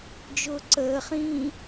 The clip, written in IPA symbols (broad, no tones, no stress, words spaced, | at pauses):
d͡ʒʊːǀəːχĩː